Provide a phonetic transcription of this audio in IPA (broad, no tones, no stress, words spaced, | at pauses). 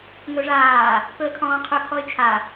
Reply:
ŋɵʐaː | pɵə̯kʰɔ̃ːqʰɵ kʰɔɪ̯t͡ʃʰa